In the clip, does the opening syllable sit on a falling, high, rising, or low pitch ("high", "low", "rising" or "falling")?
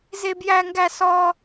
high